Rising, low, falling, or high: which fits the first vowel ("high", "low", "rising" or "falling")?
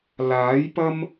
rising